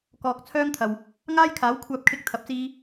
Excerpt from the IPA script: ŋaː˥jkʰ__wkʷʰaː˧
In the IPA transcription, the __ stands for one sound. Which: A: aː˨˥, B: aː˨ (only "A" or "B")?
A